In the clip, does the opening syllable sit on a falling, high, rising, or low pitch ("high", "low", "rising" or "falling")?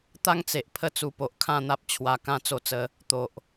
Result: falling